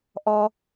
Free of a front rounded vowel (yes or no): yes